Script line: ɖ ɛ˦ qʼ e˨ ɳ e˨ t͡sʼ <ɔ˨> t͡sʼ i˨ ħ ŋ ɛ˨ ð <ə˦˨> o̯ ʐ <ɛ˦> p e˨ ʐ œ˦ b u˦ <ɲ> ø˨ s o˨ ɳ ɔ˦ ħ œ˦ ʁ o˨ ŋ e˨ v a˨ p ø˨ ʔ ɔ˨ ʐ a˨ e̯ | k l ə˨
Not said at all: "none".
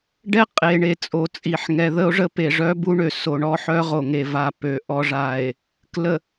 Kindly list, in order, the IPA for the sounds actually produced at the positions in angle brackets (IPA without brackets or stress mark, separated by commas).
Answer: o˨, ə˦, ə˦, ɳ